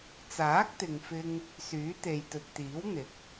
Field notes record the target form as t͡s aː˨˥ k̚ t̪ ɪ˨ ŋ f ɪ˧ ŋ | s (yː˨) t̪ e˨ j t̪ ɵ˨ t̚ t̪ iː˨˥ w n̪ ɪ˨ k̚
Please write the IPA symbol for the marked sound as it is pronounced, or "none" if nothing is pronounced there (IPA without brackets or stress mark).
yː˨˥